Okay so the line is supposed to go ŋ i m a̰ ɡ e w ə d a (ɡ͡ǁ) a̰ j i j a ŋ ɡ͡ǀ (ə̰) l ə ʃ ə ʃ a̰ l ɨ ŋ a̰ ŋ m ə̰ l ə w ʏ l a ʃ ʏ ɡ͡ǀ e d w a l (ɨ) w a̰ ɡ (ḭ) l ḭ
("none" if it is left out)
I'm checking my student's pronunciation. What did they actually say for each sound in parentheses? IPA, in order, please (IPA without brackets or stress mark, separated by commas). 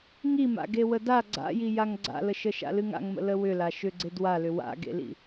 ɡ͡ǀ, a̰, ʏ, ḛ